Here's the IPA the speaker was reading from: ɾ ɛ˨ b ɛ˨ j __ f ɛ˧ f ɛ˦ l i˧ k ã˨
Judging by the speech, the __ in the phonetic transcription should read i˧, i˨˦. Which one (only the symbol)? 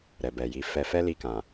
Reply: i˨˦